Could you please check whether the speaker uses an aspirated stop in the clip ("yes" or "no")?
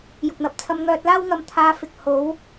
yes